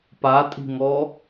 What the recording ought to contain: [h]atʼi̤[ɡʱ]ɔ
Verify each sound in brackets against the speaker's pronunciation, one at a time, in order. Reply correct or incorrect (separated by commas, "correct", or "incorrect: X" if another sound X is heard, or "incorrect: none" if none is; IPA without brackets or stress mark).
incorrect: p, incorrect: ŋ